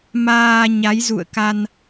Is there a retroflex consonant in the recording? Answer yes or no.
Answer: no